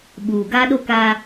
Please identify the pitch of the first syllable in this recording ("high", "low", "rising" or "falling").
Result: low